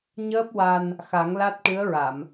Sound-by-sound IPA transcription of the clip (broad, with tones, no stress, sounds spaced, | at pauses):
ɲ əː˦˥ p̚ w a˧ n | x a˨˩˦ ŋ l a˦˥ t̚ ʈ ɨ˧˥ ə̯ ɹ a˨˩˨ m